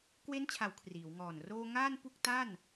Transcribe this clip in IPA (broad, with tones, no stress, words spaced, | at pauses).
kwe˦˥nt͡ɕʰa˩˦w kʰriː˩˦wŋɔː˨˩n roː˧ ŋaː˥˩npu˥˩k̚ta˥˩n